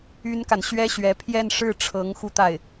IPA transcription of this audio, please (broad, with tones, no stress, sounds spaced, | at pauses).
y˥ n k a˨ n ɕ ɥ ɛ˥ ɕ ɥ ɛ˧˥ pʰ j ɛ˥˧ n ʂ ɻ̩˥˩ ʈ͡ʂʰ ɤ˧˥ ŋ x u˥˧ t̪ a˥˩ ɪ̯